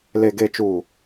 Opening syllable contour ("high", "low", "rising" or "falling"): low